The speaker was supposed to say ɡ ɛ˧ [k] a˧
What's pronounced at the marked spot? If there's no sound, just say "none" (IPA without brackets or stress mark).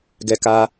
k